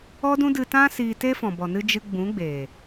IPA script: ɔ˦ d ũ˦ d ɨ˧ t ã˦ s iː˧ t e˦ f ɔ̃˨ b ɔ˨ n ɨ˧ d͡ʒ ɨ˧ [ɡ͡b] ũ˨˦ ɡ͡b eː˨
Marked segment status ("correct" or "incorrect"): correct